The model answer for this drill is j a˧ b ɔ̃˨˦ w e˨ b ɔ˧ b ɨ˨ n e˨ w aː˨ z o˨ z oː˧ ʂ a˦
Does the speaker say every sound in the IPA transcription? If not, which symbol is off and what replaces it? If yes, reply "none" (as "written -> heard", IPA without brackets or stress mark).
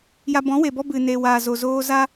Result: ʂ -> z